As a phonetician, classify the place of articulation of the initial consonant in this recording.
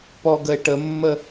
labial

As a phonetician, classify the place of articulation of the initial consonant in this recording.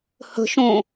glottal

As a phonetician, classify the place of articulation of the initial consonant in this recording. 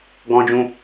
velar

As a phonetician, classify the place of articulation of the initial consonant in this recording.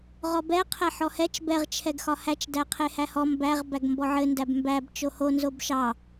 uvular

